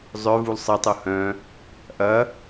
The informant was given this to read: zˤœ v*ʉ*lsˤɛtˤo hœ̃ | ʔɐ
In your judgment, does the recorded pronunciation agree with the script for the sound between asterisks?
no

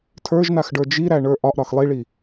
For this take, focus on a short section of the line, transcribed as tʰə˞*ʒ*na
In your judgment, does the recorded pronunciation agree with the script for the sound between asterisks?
yes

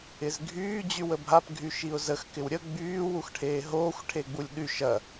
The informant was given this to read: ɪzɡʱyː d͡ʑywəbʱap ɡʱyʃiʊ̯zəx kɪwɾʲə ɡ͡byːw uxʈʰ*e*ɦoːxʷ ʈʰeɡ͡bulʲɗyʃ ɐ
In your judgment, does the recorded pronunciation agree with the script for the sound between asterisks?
no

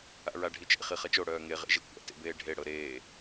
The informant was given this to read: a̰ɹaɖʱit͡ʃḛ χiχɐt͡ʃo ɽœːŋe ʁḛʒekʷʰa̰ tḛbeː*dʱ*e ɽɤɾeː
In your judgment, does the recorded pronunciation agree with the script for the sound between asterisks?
no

